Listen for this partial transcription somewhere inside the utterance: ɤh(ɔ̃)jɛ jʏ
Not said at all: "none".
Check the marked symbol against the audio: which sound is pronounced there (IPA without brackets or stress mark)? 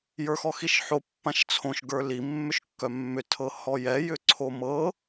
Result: ɔ